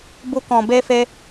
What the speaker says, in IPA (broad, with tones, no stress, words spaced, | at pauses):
bu˦kɔ̃˧be˦fe˦